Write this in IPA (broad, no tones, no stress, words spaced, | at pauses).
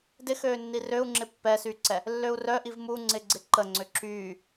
dɪxøːnːi røu̯ŋ͡ǁɪ pːɛsyǀɛ | lːøu̯rœʔiv muŋ͡ǀɪɡ͡ǀɪ ǃəŋ͡ǀʏ ǁyː